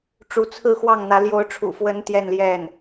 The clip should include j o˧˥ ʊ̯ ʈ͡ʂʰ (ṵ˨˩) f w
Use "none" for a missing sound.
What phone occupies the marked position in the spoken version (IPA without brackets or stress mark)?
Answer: ṵ˨˩